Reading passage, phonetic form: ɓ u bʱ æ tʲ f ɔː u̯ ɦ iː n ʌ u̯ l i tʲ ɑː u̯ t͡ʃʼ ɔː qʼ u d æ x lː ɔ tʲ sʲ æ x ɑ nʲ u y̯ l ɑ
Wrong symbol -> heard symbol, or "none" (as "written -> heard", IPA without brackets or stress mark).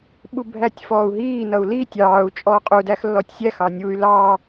none